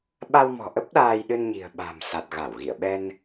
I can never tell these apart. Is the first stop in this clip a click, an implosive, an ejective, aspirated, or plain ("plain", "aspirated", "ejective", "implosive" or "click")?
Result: implosive